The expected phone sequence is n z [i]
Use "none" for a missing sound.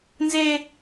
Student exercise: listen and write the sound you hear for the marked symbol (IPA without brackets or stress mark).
e